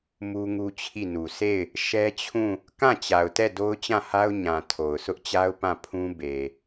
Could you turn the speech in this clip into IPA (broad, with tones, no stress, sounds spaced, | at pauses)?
m u˦ ŋ u˦ t͡ɕʰ i˦˨ n u˨ s e˦˨ ɪ̯ | ʃ ɛ˦ t͡ɕʰ ũ˦˨ | k ã˦˨ t͡ɕ a˨ ʊ̯ t ɛ˦˨ d o˦ ʊ̯ t͡ɕ ã˦˨ h a˦ ʊ̯ ɲ ã˨ tʰ o˨ ʊ̯ sʰ ʊ˦ ʔ t͡ɕ a˦ ʊ̯ p ã˦˨ pʰ ũ˦ b e˨